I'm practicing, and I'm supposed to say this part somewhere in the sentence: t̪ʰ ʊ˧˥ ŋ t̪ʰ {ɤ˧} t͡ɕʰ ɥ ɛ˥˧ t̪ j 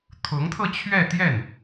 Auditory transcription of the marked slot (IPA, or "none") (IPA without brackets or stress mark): ɤ˧